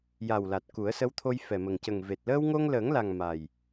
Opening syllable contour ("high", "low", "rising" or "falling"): low